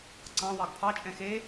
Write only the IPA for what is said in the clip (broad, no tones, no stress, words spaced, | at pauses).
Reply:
ǀɑ̃wɑɡ pʰɑt͡ʃʼɛ̃ xe